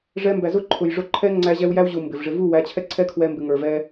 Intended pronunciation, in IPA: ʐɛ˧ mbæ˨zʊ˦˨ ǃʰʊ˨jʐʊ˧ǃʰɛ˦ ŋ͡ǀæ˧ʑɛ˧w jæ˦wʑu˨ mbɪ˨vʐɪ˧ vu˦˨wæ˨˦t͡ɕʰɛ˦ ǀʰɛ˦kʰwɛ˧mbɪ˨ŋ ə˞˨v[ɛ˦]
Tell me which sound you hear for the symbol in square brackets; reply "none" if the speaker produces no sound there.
ɛ˦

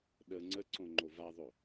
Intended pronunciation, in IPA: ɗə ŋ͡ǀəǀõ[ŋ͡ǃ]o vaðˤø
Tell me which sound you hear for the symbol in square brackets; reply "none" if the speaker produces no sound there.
ŋ͡ǃ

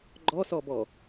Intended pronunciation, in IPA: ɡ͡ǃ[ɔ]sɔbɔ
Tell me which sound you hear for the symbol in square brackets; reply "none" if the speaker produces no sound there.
ɔ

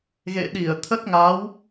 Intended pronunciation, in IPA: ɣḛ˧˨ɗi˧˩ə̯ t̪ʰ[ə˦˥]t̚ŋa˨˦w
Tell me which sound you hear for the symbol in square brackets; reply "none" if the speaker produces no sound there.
ə˦˥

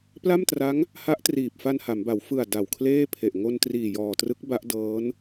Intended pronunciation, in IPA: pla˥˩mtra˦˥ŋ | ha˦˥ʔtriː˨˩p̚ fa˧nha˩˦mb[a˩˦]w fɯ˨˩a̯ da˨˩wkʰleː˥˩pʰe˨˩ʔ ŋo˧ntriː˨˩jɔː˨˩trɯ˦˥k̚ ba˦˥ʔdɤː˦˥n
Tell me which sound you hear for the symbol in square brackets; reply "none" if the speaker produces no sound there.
a˩˦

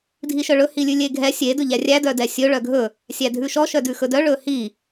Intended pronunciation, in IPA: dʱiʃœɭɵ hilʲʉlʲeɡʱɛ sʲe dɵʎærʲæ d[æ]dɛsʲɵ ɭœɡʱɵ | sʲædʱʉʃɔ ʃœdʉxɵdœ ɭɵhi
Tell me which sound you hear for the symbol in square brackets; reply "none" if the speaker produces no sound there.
œ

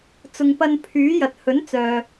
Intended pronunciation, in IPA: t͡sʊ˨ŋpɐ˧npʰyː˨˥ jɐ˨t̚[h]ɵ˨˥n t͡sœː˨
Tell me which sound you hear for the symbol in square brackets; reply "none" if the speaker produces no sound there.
h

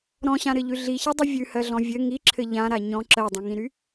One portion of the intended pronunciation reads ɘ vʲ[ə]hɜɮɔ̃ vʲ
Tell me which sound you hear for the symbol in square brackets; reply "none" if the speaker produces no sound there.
ʉ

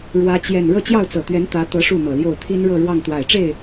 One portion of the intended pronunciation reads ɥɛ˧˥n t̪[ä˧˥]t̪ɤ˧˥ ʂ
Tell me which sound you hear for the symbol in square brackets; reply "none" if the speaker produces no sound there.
ä˧˥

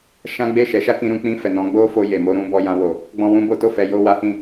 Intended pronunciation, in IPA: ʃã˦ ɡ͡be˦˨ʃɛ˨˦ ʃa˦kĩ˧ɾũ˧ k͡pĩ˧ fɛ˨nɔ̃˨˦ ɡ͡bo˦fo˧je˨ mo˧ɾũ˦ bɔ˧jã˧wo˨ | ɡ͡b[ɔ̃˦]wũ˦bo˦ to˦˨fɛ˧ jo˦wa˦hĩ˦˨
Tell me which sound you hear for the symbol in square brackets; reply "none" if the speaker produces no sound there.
ɔ̃˦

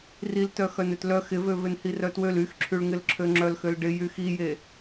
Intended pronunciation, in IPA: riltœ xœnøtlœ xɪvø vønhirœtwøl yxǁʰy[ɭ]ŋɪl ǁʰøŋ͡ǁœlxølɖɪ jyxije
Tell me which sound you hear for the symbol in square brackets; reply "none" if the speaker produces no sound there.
ɭ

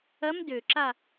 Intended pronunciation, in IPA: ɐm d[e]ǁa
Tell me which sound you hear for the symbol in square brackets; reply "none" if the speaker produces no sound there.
ø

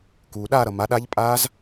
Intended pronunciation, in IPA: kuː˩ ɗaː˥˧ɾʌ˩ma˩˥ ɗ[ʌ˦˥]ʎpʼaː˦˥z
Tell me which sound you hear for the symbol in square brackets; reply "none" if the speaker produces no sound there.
a˦˥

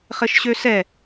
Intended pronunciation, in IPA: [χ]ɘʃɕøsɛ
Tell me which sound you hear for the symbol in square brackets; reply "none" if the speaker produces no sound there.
χ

